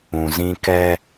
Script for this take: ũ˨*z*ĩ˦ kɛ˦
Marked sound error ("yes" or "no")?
no